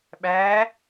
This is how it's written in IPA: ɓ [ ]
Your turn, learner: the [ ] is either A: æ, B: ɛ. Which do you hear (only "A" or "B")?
A